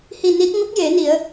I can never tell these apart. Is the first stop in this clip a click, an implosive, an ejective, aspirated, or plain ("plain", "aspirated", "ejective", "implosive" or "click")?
plain